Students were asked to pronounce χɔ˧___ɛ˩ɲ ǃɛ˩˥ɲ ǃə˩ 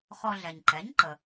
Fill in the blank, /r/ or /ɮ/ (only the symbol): ɮ